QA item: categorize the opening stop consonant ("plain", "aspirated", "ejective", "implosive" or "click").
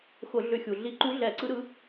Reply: click